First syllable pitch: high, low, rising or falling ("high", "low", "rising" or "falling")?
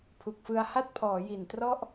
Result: low